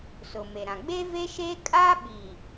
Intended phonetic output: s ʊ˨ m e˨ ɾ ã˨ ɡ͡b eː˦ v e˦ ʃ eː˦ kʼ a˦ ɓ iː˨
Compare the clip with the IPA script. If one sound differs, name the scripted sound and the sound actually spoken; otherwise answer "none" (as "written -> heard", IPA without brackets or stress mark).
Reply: none